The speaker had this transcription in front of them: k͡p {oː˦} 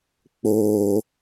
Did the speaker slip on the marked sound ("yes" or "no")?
no